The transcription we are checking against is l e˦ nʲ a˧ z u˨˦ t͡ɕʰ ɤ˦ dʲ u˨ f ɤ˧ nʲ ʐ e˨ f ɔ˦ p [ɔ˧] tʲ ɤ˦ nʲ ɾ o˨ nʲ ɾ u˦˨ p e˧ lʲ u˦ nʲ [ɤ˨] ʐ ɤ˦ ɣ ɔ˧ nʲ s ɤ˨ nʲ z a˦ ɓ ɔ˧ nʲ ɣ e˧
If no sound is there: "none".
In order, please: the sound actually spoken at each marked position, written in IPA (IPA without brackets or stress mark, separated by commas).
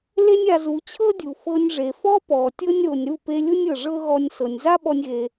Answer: ɔ˨, ɤ˨